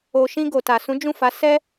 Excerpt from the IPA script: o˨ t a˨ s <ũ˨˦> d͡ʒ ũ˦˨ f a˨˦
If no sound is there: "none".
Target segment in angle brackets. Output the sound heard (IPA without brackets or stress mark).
ũ˨˦